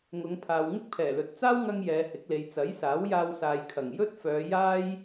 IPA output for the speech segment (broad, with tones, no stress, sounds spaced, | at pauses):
ŋ ʊ˨˧ ŋ pʰ aː˨ w ŋ ɪ˥ k̚ pʰ ɛː˨˩ l ɵ˨ t̚ t͡s aː˥ w ŋ ɐ˧ ŋ j ɛː˨˧ h ɪ˨˥ k̚ l e˨ j t͡s ɐ˨˥ j s aː˨˥ w j aː˧ w s aː˨ j kʰ ɐ˨˩ ŋ j ɵ˥ t̚ f œː˨˧ j aː˥ j